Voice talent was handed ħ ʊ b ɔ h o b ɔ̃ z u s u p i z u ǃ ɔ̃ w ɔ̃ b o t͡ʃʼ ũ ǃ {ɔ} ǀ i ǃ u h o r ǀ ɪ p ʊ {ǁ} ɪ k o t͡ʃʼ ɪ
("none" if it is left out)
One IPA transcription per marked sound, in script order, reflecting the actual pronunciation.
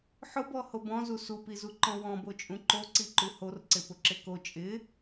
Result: o, ǁ

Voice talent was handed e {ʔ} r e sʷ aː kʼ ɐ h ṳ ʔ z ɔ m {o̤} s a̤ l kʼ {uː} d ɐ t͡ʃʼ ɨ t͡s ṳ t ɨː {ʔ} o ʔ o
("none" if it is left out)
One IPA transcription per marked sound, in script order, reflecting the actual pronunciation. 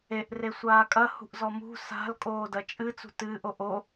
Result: ʔ, ṳ, oː, ʔ

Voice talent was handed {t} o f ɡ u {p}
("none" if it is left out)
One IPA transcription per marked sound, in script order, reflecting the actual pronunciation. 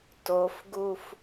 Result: t, f

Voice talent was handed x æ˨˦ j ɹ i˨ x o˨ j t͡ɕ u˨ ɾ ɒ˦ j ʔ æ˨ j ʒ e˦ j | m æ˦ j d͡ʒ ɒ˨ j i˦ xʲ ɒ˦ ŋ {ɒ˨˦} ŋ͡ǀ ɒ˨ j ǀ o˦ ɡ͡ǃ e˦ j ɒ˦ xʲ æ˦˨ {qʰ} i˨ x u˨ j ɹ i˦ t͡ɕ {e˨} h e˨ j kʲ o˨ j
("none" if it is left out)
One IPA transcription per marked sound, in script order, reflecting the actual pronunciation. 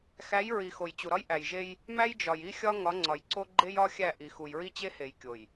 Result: ɒ˨˦, ʔ, e˦

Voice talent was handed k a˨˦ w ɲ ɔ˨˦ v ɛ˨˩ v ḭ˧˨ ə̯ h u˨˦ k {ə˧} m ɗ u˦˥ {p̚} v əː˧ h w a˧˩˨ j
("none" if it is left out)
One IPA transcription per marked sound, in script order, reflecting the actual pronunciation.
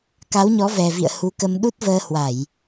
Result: ə˧, t̚

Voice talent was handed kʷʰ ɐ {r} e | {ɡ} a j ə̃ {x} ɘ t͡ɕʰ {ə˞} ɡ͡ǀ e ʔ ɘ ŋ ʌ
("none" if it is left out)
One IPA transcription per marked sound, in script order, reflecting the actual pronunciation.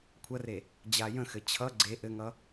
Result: r, d͡ʑ, x, ʌ

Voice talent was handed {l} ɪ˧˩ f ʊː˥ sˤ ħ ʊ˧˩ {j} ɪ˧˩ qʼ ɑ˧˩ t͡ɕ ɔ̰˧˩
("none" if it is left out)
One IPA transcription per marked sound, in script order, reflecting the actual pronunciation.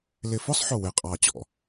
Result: l, w

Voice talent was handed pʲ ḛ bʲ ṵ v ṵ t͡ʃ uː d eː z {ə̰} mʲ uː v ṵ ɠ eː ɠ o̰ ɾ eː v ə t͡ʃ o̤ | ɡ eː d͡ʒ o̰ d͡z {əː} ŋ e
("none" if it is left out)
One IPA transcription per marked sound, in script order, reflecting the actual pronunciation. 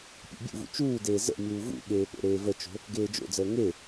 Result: ə̰, əː

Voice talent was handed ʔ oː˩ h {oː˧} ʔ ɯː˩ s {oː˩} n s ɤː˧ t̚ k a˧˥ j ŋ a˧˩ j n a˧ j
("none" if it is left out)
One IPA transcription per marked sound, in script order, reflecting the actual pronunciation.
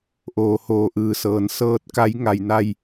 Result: oː˩, ɤː˩

